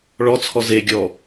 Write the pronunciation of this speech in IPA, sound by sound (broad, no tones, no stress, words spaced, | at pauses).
ɭɔt͡sʰɔ zeɡʲɔ